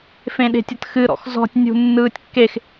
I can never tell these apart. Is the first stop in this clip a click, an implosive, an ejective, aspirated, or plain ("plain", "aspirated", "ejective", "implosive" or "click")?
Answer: implosive